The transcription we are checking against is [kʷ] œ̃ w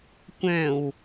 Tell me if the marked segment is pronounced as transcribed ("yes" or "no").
yes